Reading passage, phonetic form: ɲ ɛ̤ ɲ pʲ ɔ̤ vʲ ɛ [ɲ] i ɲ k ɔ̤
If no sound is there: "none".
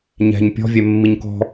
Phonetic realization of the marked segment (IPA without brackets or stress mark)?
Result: mː